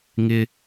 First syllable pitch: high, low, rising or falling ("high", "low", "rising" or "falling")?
high